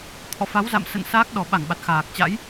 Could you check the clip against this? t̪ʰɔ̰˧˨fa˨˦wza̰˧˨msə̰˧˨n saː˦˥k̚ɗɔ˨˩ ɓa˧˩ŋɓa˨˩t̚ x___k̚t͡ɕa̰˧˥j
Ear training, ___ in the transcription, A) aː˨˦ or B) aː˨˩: B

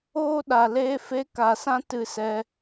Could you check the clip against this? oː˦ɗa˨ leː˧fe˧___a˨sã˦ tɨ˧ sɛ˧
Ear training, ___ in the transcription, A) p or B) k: B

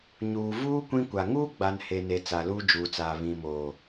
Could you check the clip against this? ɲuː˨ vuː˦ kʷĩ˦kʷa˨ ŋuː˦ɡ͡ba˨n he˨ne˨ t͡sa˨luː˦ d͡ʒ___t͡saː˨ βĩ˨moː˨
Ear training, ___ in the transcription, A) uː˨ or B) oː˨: A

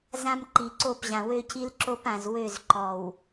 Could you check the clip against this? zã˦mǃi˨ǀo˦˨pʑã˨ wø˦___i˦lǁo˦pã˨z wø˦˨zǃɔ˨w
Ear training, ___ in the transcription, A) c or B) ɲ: A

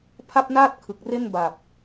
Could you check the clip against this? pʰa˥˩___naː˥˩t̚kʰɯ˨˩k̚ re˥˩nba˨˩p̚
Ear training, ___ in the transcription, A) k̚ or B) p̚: B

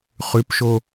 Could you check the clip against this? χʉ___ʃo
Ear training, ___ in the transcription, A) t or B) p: B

